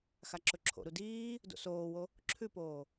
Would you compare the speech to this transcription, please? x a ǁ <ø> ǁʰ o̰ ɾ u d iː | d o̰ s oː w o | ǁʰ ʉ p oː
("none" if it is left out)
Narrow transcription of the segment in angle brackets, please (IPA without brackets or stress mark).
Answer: ɵ